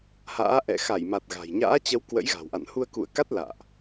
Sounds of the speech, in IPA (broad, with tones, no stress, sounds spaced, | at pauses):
h a̰ː˧˥ ʔ ɛ̰˧˨ x a˧˩ j m a˨˩ t̚ ɣ a̤˨˩ j ɲ a̰ː˧˥ t͡ɕ ə˨˦ w k w ə̰˧˥ j ɣ a̤˨˩ w ʔ a̰˧˨ n h u˧ ə̯ k ṵ˧˨ ə̯ k a˦˥ t̚ l a̰ː˧˨ ʔ